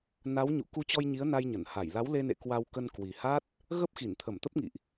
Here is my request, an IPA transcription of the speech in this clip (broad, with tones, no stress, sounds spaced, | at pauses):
n a˨˦ w ɲ ṵ˧˨ k u˧ t͡ɕ ɔ˧ j ɲ i˨˦ ə̯ n a˧ j ɲ ə˧˩ n h a˧˩ j l a˨˦ w l e˧ n ḛ˧˨ k w a˧ w k ə˧ n k w i˨˩ h a˦˥ t̚ | ɣ ə˦˥ p̚ x i˧˩ n t̪ʰ ə˧˩ m t̪ ə˦˥ p̚ ŋ ḭ˧˨ ʔ